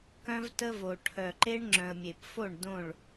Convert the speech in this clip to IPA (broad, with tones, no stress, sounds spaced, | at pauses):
k œ̃˦ v t ə˦ v o˨ ʈʰ œ˨ ǃ e˦ ɳ ŋ͡ǁ œ̃˨ ə̯ mʲ e˨ p f o˦˨ ɳ d õ˦˨ ɭ